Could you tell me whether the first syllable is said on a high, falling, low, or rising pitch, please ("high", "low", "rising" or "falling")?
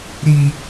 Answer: high